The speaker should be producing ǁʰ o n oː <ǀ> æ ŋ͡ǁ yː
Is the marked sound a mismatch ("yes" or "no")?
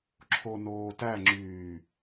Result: yes